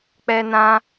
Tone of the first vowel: high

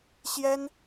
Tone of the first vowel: high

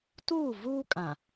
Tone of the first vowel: falling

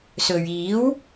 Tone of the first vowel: low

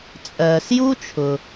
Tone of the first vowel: low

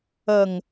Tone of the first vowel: low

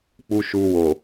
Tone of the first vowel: high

